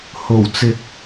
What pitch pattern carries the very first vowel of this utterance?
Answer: low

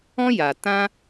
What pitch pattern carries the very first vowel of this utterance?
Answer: high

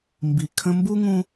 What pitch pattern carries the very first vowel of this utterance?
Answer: low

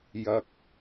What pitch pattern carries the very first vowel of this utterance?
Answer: low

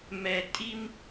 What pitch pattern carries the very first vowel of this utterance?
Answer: low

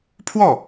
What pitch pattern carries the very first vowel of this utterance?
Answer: falling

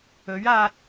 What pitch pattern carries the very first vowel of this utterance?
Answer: rising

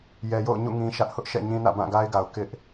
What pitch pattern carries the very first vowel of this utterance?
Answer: low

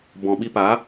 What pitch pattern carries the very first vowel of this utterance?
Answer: low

